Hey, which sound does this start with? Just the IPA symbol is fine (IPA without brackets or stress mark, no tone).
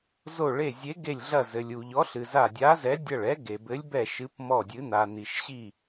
z